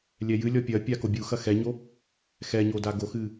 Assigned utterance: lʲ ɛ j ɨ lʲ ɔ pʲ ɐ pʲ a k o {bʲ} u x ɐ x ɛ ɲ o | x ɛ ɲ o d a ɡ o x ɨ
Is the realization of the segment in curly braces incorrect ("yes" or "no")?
no